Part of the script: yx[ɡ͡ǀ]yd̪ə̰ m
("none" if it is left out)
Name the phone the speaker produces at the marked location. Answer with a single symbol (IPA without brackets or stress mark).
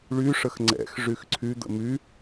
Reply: ǀʰ